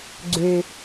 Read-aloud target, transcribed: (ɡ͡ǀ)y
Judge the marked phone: correct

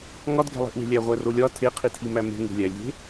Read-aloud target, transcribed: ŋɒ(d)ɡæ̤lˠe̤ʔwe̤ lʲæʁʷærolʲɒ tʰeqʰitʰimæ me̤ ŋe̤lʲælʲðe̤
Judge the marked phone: correct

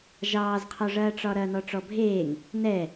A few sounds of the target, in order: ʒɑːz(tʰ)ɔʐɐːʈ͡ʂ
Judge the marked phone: incorrect: qʰ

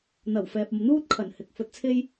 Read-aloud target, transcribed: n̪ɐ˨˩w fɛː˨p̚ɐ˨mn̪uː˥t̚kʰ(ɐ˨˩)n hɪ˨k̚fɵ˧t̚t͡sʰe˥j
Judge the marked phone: correct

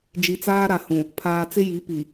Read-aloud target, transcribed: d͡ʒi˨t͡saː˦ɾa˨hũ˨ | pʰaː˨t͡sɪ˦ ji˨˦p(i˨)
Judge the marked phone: correct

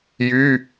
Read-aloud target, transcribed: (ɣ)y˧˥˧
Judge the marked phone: incorrect: j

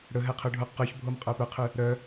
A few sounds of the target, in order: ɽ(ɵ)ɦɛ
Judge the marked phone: correct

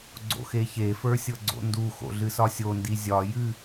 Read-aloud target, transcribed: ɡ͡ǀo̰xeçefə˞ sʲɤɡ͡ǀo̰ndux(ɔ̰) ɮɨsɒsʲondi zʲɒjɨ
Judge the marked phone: incorrect: o̰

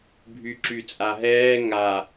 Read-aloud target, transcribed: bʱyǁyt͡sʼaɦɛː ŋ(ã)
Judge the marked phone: incorrect: a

